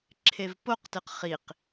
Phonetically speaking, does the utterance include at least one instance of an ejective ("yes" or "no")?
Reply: no